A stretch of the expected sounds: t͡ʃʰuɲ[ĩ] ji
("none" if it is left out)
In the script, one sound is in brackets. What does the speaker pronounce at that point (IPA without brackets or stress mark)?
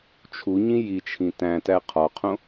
ĩ